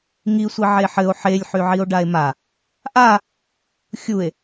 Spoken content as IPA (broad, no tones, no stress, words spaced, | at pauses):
ŋisʷi ʕeħɘo̯ ħelʲħyʕio̯ ɖae̯ma | ʔa | xʲue̯